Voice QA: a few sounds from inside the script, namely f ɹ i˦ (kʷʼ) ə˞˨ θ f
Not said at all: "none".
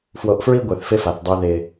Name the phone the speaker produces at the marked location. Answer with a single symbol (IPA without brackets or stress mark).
ɡʷ